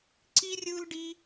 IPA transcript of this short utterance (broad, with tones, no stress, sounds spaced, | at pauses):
ǀ i˦ rʲ ɯ˦ l ɖ i˦